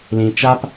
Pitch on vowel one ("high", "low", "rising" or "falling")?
low